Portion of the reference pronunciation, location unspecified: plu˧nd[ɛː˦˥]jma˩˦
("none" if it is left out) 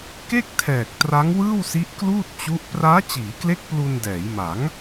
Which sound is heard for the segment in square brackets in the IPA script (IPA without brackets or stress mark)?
ɛː˩˦